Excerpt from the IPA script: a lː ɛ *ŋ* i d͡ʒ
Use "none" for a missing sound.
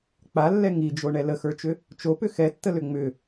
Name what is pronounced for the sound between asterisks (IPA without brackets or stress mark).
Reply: ŋ